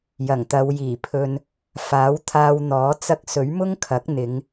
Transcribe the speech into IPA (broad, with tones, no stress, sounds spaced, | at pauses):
j ɐ˨˩ ŋ t̪ ɐ˨˧ w j iː˨˩ pʰ ɵ˧ n | f aː˨˥ w t̪ʰ aː˧ w n̪ ɔː˨˥ t͡s ɐ˧ k̚ s ɵ˨˥ ɥ m ʊ˥ ŋ kʰ ɐ˨˥ k̚ n̪ ɪ˨˧ ŋ